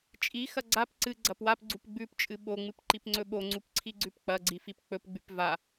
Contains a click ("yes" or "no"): yes